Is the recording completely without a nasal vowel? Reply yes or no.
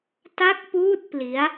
yes